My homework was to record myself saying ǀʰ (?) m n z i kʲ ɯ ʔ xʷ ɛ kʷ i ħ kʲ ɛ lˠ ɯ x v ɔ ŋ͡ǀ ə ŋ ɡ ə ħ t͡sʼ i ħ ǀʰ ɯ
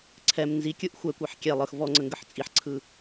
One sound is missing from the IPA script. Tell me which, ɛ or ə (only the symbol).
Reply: ɛ